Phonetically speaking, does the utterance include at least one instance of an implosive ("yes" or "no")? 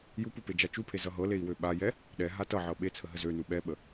yes